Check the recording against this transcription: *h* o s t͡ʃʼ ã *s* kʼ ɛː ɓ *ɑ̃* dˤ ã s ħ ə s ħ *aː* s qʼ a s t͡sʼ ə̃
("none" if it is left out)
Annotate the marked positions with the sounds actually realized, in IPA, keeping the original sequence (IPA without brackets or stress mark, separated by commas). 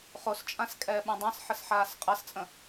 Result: χ, s, ã, aː